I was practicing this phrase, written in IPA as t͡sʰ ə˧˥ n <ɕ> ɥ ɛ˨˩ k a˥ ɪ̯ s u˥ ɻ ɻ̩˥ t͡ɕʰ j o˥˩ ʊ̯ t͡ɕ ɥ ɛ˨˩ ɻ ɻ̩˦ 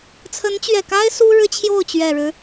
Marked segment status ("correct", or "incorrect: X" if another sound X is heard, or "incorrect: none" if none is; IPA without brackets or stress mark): incorrect: t͡ɕ